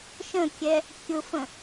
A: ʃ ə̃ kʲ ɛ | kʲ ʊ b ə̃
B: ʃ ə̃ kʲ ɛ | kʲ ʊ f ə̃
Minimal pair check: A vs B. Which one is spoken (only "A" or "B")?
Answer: B